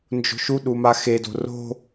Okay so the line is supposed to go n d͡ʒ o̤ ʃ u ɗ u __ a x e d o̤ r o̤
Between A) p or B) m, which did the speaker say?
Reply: B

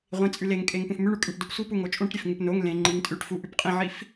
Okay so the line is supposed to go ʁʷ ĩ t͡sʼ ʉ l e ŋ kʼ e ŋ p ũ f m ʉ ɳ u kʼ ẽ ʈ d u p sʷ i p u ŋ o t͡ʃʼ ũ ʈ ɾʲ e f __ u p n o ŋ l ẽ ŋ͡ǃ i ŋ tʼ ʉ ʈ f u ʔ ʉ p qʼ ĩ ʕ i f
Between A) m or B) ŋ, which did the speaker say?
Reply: B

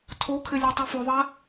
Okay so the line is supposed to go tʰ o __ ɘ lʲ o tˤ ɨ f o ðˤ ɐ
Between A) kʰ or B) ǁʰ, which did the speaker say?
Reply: A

